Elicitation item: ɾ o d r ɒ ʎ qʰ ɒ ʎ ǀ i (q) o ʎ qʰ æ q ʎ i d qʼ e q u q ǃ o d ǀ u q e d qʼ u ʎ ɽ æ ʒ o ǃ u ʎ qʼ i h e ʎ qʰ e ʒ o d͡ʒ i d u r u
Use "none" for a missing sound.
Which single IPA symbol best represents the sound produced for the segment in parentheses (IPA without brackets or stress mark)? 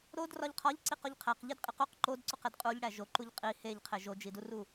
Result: q